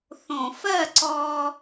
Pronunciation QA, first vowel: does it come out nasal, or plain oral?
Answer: nasal